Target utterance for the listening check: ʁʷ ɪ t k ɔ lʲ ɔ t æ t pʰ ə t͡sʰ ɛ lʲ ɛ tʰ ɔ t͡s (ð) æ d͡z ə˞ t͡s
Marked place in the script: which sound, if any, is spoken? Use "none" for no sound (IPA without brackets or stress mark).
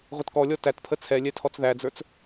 ð